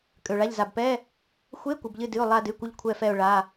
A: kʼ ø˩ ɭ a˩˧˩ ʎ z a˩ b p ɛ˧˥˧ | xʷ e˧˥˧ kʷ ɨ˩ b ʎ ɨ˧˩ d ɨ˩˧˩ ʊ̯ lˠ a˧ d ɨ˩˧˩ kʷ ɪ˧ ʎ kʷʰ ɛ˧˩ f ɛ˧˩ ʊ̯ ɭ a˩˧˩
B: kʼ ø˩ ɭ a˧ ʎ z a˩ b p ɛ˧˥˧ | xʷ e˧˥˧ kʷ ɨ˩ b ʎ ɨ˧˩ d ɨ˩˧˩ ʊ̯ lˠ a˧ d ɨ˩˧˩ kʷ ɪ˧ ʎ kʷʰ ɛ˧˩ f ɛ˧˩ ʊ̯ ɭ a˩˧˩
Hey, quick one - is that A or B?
A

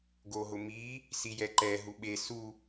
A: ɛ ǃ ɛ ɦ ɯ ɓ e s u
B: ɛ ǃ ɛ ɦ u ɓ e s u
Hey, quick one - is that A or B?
B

